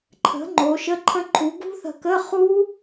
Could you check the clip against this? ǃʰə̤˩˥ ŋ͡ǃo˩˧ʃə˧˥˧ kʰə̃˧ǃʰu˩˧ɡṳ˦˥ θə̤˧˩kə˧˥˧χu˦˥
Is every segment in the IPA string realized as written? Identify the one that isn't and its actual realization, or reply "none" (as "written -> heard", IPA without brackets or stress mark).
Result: kʰ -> ǃʰ